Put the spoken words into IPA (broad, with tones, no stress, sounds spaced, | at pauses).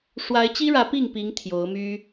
ʂ w a˧˥ ɪ̯ t͡ɕ i˥ ɻ ä˧˥ p i˥˩ ŋ p i˧˥ ŋ t̪ʰ j o˧˥ ʊ̯ m y˥